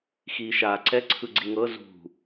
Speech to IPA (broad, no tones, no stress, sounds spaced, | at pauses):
x iː ʃ aː ǀ ɛ ǀʰ ɯ ɡ͡ǀ i ŋ ɤ z ṳ